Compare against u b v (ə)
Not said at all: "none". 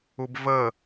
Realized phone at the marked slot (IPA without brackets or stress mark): ə